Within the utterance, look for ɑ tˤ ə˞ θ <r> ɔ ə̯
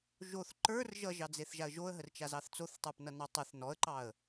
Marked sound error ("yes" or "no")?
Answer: yes